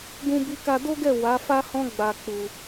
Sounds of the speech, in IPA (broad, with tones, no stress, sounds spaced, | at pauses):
ɡ ũ˧ b i˧ k a˧ d o˦ ɡ ɛ˦˨ w a˨˦ f a˦ h ɔ̃˦ ɡ͡b a˧ k͡p u˧